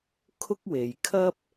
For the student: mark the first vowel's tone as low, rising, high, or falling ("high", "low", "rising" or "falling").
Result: high